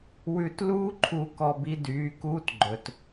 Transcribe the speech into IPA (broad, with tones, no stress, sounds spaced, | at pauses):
w ʉ˨ t l uː˦ ǃʰ u˨ k ɔ˨ b i˦ d yː˨˦ k uː˦ t ɡ͡ǃ ɵ˨ t